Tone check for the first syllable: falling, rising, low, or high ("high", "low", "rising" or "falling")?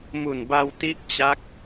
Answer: low